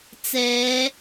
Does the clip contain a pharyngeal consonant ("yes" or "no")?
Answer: no